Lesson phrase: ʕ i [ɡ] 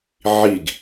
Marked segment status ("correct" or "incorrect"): correct